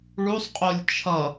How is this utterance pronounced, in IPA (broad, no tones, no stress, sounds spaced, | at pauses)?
ɭ u sˤ qʼ o lʲ t͡ʃʰ ʌ